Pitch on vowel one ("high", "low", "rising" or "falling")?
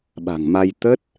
low